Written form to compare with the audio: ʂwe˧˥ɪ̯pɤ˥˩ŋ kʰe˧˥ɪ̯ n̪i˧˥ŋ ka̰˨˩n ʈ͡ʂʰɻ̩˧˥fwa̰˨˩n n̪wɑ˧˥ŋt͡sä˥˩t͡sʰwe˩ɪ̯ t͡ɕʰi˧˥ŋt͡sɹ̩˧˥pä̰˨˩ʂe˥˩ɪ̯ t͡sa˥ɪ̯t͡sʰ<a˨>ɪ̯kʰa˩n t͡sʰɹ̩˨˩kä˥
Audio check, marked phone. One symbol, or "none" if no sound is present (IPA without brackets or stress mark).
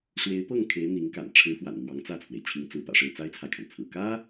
a˨